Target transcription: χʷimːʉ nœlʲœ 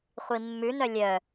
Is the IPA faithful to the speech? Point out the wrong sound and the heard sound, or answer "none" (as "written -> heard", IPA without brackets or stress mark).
none